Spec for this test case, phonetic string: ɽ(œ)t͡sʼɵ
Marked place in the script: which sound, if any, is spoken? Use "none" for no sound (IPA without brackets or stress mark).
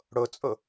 ɵ